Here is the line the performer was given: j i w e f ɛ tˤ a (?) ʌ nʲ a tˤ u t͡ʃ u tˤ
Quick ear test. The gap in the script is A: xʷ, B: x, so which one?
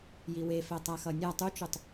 B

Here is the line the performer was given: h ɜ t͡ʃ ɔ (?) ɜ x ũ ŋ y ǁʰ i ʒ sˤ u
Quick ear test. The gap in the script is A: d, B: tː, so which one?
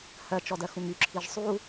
A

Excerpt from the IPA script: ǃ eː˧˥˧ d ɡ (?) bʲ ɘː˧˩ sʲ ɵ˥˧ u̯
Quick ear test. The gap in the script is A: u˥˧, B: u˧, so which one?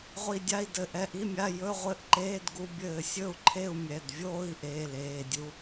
B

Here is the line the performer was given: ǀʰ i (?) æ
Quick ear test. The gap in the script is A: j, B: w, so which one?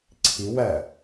B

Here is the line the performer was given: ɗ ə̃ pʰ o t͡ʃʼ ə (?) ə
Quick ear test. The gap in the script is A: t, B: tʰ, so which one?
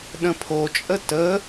A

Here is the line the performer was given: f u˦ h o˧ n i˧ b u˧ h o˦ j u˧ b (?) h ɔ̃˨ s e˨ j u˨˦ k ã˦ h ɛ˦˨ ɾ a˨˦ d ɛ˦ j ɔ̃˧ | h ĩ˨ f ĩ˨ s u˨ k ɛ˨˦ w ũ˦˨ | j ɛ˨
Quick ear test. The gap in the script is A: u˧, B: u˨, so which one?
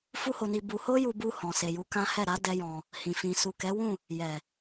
A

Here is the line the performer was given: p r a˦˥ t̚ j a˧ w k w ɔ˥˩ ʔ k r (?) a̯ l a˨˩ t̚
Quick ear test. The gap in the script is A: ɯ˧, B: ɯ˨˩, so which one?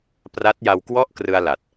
A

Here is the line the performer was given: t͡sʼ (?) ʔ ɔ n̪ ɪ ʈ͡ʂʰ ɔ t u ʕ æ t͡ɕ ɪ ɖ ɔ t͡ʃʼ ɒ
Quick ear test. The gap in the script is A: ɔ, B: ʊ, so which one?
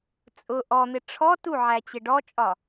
B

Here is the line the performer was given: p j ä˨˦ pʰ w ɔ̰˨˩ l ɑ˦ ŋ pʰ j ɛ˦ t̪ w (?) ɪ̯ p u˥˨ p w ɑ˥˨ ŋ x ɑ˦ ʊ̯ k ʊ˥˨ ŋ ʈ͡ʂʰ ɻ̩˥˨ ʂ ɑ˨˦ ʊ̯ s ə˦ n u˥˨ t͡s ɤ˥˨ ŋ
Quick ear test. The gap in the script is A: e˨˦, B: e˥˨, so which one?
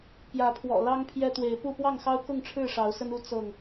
A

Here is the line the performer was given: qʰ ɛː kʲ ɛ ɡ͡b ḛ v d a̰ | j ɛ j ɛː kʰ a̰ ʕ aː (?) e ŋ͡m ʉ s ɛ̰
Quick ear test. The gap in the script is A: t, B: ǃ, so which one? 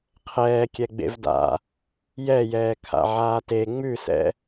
A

